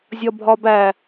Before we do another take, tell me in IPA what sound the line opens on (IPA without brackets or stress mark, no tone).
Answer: zʲ